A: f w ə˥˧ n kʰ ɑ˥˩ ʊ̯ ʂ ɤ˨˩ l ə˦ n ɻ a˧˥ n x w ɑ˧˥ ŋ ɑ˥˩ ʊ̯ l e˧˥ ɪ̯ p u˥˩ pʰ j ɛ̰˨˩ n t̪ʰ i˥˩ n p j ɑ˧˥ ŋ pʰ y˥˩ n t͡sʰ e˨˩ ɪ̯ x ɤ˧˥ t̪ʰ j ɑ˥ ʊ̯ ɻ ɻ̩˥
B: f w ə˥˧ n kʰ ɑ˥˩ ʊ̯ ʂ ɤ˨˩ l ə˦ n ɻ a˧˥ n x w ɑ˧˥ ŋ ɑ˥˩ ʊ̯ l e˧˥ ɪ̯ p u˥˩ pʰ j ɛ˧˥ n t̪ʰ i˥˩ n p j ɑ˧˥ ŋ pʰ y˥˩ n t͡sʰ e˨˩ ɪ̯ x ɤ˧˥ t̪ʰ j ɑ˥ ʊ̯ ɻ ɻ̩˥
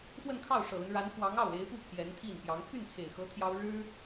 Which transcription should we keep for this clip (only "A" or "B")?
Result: B